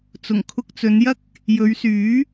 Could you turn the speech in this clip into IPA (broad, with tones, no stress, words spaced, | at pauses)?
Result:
t͡sʊ˨˩ŋkʰʊ˧k̚t͡sɵ˨˧njɐ˥k̚ | jɵ˨˧ɥsyː˨˥